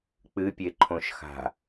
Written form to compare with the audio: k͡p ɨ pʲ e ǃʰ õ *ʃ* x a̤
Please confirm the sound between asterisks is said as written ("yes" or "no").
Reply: yes